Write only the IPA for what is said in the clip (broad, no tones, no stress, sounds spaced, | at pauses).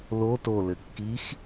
l o t o l ɘ kː i x